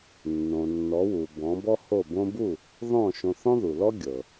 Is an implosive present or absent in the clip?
absent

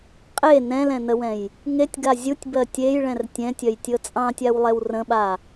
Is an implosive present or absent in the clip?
present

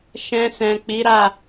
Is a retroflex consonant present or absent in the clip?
absent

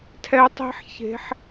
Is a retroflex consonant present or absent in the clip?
absent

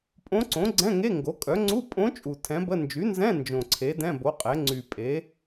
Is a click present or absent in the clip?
present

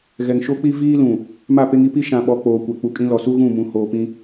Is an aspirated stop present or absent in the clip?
absent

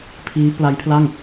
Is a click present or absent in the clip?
absent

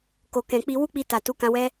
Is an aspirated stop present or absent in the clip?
absent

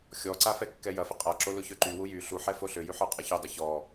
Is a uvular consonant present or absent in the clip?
present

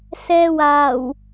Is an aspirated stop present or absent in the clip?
absent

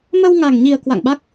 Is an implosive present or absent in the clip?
present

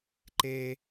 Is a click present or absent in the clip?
present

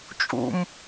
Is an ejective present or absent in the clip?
present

